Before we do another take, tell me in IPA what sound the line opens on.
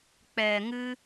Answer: k͡p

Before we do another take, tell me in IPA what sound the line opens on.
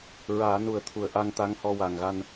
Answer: ɹ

